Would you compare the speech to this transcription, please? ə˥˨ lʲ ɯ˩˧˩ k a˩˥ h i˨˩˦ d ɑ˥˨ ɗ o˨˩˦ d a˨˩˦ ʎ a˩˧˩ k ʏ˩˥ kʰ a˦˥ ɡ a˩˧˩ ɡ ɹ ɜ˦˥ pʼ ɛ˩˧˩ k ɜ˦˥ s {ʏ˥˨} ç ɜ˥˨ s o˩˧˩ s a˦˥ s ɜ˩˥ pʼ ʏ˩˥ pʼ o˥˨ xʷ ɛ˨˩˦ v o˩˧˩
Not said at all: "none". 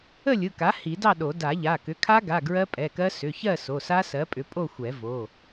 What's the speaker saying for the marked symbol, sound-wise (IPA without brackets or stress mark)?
ʏ˩˧˩